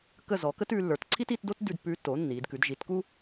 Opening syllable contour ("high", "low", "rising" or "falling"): falling